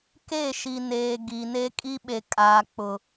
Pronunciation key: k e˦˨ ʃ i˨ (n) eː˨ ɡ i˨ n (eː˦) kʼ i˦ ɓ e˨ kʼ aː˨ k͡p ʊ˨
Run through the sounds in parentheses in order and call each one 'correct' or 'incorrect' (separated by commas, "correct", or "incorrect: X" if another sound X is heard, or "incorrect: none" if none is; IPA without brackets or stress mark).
correct, incorrect: e˦